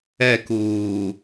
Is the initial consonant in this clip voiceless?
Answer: yes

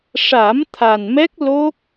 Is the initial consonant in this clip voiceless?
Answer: yes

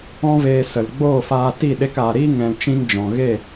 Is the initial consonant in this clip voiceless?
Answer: no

